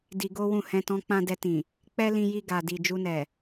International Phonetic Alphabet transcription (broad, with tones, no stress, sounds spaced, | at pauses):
d i˧ ɡ o˦ w ũ˦˨ h ɛ̃˧ t ɔ̃˧ k͡p ã˧ d ɛ˧ t ĩ˨ | k͡p ɛ˦ l ĩ˧ j i˧ ɡ a˨ d i˨ d͡ʒ u˧ n ɛ˨